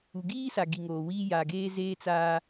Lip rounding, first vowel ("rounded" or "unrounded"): rounded